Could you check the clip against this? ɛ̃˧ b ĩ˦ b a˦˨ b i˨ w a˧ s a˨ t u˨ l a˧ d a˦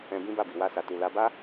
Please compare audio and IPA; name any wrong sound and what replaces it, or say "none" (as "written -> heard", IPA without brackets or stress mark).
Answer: d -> b